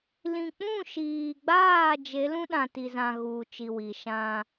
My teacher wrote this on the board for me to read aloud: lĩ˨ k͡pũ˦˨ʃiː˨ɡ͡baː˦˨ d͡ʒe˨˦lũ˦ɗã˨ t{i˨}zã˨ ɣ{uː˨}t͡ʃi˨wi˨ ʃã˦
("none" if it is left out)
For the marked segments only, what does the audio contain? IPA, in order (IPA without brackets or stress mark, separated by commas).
i˨, uː˨